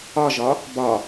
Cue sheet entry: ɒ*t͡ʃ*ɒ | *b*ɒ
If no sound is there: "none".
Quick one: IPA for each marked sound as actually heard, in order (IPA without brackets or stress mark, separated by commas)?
ʒ, b